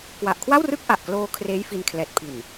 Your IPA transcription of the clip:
k w a˨˩ ʔ kʰ w a˥˩ w r ɯ˥˩ k̚ ʔ a˨˩ ʔ k l oː˧ kʰ r eː˦˥ j f i˧ n kʰ l ɛː˨˩ t̚ pʰ i˨˩ n

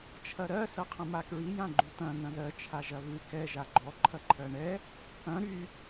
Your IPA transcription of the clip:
t͡ʃʰ ɐ ɾ ɜ s ɐ qʰ ɐ̃ m a k ɹ i j ã ɡ͡ǃ ʉ t̪ ɐ̃ n̪ ɐ̃ ð ɜ t͡ʃʰ a ʒ ɐ β ʉ k ɛ ʒ a ɡ͡ǃ ɔ ǃʰ ɐ ǃʰ ɜ ɳ ɛ | k ɐ̃ ɾ y

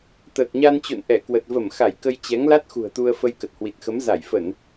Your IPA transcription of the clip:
t̪ əː˨˩ k̚ ɲ a˧ n t͡ɕ o̰˧˨ n ʔ ɛ˧˩ k w ə˨˩ t̚ v ə˧˩ m x a˧˩ j k ə˧ j t͡ɕ ɛ˨˦ ŋ l a˦˥ t̚ x ṳ˨˩ ə̯ t̪ u˧ ə̯ f ə˧ j k ə˨˩ t̚ h w i˨˩ t̚ x ə˨˦ m z a˧˩ j f ə˧˩˨ n

